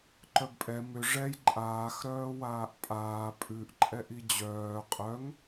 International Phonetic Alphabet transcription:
ǃ œ b pʼ ɛ m ʏ ʐ ɛ j ǃʼ aː x ɾ œː w aː ʔ pʼ aː pʼ ʉ ʔ ǃʼ ɛ ʔ i d͡ʑ œː qʼ œ ŋ

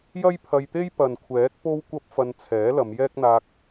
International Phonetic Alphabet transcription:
j ɐ˥ j pʰ ɐ˧ j t̪ e˥ j p ɐ˨ n kʷʰ ɛː˨˥ k̚ p o˥ w kʷ ɐ˥ p̚ f ɐ˧ n t͡sʰ ɛː˨˥ l ɐ˨˧ m j ɛː˥ k̚ n̪ aː˧ k̚

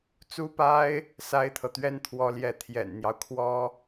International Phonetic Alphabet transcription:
t͡s u˥ p a˥ ɪ̯ | s a˥ ɪ̯ t̪ʰ ɤ˨ t̪ ɥ ɛ˥ n t̪ʰ w ɔ˥ l j ɛ˥˩ t̪ʰ j ɛ̰˨˩ n n̪ j ɑ˦ ʊ̯ kʰ w ɔ˥

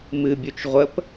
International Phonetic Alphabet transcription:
m ɨ bʲ u t͡ʃ ʁʷ ə p

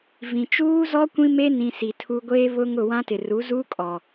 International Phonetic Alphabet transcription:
v ĩ˨ t͡ʃ uː˦ z ɔ˦ kʷ ĩ˦ m e˦ n ĩ˨ s i˨ tʰ u˦ ɡʷ eː˦ β ʊ˦ ŋ ʊ˦˨ w ã˦ t ɪ˨ r u˨˦ z uː˦ kʼ ɔ˨

